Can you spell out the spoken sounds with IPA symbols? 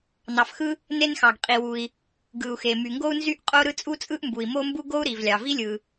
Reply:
nɑ˩fxɯ˥ | ne˥nxɑ˩ɡqʼi˩wu˩i̯ | ɡɯ˩u̯xe˩ my˩ŋɡo˥u̯nzy˥ʔqʼo˥ ɾɯ˥t͡sʼu˥t͡sʼɯ˥ʔmbu˩i̯ mo˥mbu˥ ɡo˥u̯ɾi˩v lʲɑ˩vi˥lʲɯ˩

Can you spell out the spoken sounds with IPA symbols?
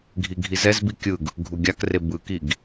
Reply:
ɡʱiɡʱizɛzbi kʲɯɡ | ɡʱuɡʲakre bɯkiɡ

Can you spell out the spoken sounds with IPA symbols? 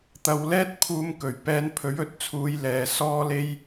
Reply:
t̪ɐ˨wlɛː˥t̚pʰuː˧mkɵ˨˩ɥ pɛː˧npʰɵ˨˥ɥɵ˨t̚t͡sʰuː˨˧j lɛː˨sɔː˥le˥j

